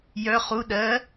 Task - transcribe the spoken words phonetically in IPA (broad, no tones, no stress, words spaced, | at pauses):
jœ χu ɗɜ